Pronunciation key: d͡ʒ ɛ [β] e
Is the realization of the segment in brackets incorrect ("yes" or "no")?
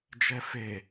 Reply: yes